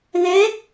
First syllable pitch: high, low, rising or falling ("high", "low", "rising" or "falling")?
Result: rising